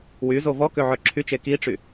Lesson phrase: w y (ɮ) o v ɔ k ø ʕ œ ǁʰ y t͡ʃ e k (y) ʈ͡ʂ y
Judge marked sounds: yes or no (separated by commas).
no, no